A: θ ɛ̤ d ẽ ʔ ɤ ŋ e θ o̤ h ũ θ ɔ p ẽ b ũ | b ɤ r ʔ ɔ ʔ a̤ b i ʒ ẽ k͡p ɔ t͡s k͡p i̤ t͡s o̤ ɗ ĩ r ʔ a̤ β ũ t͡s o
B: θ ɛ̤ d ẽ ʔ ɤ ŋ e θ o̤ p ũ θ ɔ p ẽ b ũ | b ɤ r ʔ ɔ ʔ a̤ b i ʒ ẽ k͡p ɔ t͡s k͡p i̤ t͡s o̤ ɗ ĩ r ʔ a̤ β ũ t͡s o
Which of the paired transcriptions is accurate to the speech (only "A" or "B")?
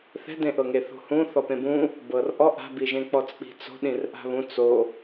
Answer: A